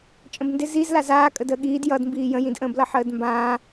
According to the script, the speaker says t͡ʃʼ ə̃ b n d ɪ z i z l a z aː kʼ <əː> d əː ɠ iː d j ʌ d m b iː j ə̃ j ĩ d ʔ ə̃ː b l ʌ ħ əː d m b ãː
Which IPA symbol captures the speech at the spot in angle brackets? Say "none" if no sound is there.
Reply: ə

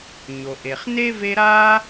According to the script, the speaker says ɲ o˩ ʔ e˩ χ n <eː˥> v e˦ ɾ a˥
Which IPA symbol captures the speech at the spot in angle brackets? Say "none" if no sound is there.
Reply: e˥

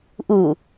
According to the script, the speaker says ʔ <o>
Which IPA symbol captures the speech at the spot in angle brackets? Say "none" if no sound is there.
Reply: u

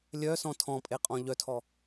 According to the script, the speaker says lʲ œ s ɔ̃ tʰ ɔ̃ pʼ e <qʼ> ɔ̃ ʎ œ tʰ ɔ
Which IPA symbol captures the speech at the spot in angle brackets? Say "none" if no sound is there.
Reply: qʼ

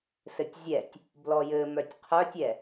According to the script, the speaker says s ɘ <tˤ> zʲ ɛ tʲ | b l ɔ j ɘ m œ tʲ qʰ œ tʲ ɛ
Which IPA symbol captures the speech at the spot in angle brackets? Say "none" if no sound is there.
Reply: tʲ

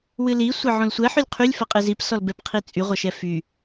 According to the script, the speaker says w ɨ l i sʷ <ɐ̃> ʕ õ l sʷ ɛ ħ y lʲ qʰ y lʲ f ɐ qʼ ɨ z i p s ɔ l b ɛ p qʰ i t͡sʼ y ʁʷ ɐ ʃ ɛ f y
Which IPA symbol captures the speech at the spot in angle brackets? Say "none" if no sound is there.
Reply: ɐ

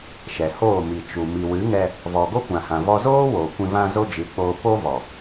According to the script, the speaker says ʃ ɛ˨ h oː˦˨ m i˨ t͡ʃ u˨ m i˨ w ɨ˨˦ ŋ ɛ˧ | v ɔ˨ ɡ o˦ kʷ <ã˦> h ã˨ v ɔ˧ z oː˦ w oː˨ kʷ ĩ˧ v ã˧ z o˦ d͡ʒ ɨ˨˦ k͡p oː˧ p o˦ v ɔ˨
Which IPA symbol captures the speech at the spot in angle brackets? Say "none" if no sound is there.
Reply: ã˨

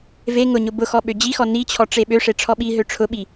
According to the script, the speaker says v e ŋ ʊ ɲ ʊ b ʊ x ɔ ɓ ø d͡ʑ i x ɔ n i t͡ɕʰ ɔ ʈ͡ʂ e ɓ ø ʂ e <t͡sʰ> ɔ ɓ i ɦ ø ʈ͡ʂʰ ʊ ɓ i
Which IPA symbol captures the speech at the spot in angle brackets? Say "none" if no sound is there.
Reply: ʈ͡ʂʰ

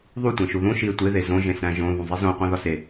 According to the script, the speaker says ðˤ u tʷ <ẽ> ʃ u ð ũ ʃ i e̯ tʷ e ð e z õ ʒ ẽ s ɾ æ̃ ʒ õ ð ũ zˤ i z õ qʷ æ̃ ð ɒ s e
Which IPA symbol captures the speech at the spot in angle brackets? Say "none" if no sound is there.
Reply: ẽ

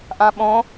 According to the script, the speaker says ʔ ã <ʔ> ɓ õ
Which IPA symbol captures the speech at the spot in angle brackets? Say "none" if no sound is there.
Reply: none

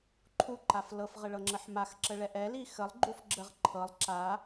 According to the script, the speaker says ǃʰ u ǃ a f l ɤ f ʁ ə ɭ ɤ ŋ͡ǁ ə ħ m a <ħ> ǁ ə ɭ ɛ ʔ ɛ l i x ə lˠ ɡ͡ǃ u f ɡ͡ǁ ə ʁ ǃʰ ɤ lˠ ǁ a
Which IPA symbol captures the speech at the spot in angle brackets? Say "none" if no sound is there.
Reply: x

